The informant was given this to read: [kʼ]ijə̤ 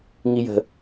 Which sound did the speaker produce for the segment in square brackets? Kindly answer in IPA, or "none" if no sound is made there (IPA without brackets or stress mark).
ŋ